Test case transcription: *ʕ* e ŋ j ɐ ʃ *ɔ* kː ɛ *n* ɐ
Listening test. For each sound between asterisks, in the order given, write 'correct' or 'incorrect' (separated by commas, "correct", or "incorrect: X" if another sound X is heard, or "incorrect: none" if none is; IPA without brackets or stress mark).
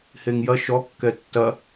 incorrect: h, correct, incorrect: tː